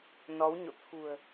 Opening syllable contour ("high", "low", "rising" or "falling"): rising